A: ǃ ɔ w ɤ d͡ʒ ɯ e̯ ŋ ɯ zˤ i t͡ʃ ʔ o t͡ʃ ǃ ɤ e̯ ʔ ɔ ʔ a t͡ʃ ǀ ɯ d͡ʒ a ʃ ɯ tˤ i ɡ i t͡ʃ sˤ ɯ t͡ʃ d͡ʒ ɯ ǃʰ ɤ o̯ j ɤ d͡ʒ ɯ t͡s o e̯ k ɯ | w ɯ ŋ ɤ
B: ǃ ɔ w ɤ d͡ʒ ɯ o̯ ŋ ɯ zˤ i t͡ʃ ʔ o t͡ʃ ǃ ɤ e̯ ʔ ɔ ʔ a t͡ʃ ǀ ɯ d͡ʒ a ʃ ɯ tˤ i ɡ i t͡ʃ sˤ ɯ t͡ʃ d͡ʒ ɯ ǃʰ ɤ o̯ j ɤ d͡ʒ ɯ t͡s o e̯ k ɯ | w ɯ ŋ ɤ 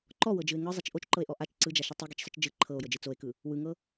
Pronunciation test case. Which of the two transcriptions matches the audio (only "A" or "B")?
A